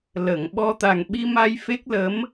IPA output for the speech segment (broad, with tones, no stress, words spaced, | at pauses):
lə˨˩˨ŋɓɔ˧ t̪a˨˩ŋɓi˧ma˧j fe˦˥k̚lə˧˥m